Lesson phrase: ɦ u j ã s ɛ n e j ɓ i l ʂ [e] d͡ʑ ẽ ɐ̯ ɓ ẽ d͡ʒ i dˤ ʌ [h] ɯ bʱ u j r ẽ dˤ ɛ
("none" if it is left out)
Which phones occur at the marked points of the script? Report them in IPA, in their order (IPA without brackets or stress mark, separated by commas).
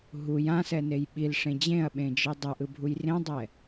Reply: ẽ, ʔ